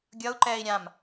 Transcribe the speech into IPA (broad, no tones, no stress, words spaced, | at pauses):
ɡʲʌu̯ǃɛːi̯ ɾʲãm